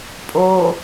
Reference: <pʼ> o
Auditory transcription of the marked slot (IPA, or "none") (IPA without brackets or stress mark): pʼ